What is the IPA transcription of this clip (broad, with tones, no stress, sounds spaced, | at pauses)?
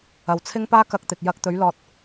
ɐ˨ w t͡sʰ ɪ˥ ŋ p aː˥ k ɐ˧ k̚ t̪ ɪ˨ k̚ j ɐ˧ k̚ t̪ ɵ˨˥ ɥ l ɔː˨ t̚